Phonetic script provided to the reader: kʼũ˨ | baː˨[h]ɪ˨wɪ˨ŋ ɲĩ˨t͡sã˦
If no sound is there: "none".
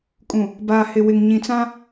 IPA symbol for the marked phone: h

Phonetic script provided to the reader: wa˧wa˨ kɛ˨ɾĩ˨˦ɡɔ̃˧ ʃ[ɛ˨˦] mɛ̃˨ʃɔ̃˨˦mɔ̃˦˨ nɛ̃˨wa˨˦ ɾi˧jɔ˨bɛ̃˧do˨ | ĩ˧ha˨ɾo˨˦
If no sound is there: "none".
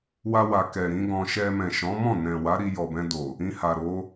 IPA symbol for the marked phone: ɛ˧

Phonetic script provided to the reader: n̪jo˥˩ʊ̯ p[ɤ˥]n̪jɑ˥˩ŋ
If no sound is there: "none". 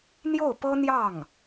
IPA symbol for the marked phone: ɤ˥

